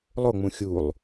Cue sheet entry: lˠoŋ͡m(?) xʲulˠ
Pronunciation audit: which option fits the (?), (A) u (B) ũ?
B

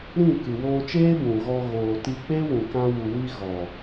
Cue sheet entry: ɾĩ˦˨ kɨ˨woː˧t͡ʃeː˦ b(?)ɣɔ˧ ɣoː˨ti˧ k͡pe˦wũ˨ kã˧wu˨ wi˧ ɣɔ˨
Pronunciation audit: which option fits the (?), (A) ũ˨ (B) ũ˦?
A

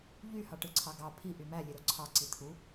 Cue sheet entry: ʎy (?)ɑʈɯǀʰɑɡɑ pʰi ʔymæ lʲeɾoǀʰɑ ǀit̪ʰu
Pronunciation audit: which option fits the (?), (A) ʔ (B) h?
B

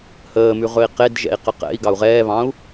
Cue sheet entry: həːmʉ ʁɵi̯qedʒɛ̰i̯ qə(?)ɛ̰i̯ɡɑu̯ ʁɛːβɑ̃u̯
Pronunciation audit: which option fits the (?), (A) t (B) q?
B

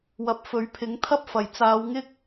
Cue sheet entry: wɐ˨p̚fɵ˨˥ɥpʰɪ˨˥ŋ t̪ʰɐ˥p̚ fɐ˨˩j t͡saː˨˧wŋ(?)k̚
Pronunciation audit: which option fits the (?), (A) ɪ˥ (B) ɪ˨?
A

